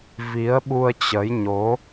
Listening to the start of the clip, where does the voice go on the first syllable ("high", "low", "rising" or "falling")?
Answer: rising